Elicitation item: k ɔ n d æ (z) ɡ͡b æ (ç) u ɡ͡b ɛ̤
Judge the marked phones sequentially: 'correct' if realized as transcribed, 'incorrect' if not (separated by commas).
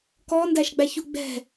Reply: incorrect, correct